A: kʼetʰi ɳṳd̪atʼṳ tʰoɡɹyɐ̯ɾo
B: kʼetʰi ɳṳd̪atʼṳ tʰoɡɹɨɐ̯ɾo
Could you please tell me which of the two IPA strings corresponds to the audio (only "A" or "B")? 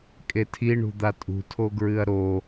B